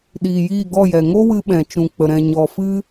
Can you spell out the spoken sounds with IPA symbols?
ɗ iː˨ j iː˦˨ ɡ ɔ˦˨ j ɛ˨ ŋ o˦ w ɨ˧ ɓ ɛ̃˨ t͡ʃ ũ˨ k͡p ə˨ ɾ ɛ̃˨ ɲ ɔ˨ f ɨ˦

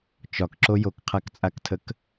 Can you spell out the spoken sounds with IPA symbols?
t͡ʃ ɒ k ǁ o j o k qʰ a k t͡sʼ a k tʰ ə k

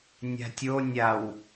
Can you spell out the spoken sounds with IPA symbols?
nʲ a̤ tʲ o nʲ a w

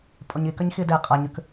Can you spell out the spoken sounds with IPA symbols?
pʼ o ɲ i k ɐ ɲ x i d e qʼ a ɲ ʉ k

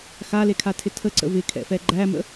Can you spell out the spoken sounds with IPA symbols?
x a l e kʰ a tʰ ɪ tʰ ə ǀ ə̰ v ɪ kʰ ɛ̰ f ɛ ɡ͡ǃ æ m ə̰

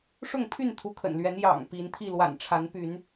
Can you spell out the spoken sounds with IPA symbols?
ʂ ʊ˥˨ ŋ pʰ y˥˨ n t̪ʰ u˨˦ kʰ ə̰˨˩ n l ɥ ɛ˨˦ n j ɑ̰˨˩ ŋ p i˨˦ n t̪ʰ i˥˨ l w a̰˨˩ n ʈ͡ʂʰ a˨˦ n p y˨˦ n

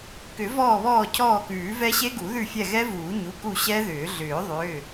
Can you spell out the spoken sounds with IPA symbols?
k ʏ˨˩˦ v ɔː˦˨ β ɔː˦˨ cʰ ɔː˦˨ k ʉː˨˩˦ v ɛ˦˥ ɕ e˦˥ ɡ u˨˩˦ ð ʉ˦˨ fʲ ɛ˦˨ ɣ ɛ˦˥ v uː˨˩˦ ɲ u˩˧˩ k u˦˨ ɕ ɛ˦˥ ð ʏː˨˩˦ ɮ ʏː˨˩˦ ðˤ ʏː˩˧˩

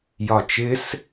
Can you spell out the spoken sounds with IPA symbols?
j ɒ t͡ʃ ɪ s

